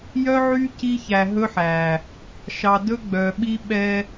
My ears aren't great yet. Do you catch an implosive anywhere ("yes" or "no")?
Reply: yes